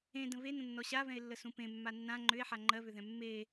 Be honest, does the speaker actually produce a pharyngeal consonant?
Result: yes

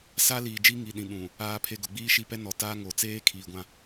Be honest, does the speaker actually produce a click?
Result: no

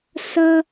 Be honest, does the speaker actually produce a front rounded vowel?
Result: no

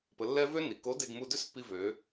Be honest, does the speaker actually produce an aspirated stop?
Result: no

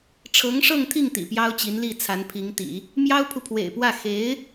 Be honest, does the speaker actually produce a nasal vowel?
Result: no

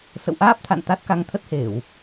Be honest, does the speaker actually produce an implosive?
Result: no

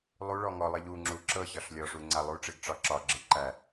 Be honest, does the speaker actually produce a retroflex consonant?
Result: yes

